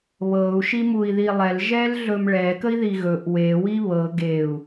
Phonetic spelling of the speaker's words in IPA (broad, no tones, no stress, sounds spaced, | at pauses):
β ɤ u̯ ʃ i m u i̯ ð i lˠ ɛ l ʒ ɛ l ɮ ɵ m ɭ ɛ k ə i̯ ð i ɣ ɵ ʔ w e w i β ɤ ɡ e u̯